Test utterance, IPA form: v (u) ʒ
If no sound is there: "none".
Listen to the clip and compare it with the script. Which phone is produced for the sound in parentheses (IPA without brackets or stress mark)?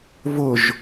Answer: ʊ